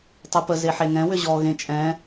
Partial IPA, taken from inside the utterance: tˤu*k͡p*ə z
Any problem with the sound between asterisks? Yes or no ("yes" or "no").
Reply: yes